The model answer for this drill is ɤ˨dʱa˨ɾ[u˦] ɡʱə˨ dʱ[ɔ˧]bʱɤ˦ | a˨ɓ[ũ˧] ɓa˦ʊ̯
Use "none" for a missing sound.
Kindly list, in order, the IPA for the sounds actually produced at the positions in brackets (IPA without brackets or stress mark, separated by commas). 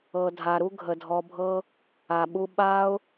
u˦, ɔ˧, u˧